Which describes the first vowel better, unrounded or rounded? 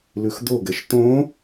rounded